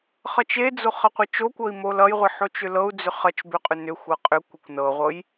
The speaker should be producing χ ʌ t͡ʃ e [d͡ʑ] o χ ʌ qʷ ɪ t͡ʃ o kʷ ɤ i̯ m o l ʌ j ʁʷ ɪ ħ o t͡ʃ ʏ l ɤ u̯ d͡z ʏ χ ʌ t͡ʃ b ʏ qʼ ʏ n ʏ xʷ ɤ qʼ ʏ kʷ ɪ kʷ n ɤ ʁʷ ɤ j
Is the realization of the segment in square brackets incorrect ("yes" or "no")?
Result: yes